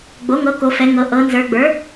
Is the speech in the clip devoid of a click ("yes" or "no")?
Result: yes